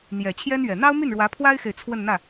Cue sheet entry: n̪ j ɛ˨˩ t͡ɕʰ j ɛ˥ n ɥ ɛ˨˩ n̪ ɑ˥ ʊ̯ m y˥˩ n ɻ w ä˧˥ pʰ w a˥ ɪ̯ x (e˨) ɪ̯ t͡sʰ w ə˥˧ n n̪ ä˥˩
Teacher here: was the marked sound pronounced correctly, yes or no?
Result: yes